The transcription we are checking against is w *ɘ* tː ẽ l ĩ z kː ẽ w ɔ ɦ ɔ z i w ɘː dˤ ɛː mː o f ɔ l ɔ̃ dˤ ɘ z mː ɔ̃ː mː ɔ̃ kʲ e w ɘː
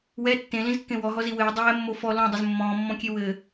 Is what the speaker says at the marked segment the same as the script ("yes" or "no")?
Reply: no